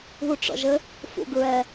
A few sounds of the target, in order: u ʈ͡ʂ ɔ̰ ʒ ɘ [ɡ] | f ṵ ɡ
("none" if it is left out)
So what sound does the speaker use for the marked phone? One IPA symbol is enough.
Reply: none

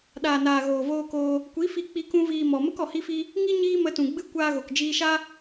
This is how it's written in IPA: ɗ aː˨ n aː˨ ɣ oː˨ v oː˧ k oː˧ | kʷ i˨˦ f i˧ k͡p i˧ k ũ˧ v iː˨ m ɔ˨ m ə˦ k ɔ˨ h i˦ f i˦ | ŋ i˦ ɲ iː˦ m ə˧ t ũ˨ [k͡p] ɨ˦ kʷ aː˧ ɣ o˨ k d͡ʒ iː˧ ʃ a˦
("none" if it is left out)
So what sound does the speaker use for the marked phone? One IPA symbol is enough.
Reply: ɡ͡b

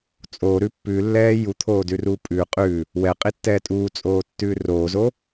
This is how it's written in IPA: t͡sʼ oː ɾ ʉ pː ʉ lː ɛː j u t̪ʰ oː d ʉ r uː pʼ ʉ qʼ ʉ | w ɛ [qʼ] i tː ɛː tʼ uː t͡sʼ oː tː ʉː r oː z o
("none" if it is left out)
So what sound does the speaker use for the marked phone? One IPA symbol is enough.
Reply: qʼ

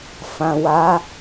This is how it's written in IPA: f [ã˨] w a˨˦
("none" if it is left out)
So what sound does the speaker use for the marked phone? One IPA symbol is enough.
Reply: ã˨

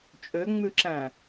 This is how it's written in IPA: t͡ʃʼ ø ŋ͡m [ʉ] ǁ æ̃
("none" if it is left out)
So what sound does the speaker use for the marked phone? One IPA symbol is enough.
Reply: ʉ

